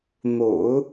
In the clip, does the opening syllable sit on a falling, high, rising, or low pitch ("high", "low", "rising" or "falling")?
low